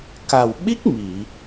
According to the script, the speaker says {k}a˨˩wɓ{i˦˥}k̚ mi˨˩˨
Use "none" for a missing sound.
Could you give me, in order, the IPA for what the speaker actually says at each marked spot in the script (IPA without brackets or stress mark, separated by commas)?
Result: k, i˦˥